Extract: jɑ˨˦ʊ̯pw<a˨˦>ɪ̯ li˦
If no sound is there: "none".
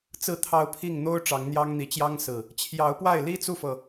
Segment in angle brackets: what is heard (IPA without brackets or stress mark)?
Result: a˥˨